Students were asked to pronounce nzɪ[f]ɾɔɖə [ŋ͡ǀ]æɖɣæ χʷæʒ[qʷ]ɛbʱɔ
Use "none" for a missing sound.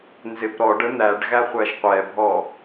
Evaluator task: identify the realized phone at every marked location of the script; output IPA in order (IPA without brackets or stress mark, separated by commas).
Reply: p, n̪, qʷ